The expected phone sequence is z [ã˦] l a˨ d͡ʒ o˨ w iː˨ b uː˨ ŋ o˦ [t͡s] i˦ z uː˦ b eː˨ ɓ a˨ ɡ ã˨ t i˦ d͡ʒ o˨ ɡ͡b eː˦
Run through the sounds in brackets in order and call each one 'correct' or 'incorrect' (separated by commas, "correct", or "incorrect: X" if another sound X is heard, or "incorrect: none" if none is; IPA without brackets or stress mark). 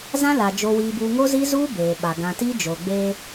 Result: correct, incorrect: z